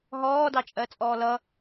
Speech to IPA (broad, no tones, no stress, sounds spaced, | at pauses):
ɦ ɔː d ɑ t͡ʃʼ ɜ t͡sʼ ɔː l ʌ